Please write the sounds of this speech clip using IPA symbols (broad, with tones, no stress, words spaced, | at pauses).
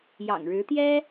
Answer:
jɑ̰˨˩ŋɻɻ̩˧˥t̪jɛ˥